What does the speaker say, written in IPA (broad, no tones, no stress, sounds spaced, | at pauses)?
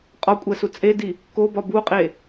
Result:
qʼ ɒ kʷʼ æ s u t͡sʼ e d i | k o b ɒ b u qʼ e